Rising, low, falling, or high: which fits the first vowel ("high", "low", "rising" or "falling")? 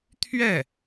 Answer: falling